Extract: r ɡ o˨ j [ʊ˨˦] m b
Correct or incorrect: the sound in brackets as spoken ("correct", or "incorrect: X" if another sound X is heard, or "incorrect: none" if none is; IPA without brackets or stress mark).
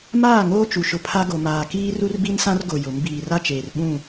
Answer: correct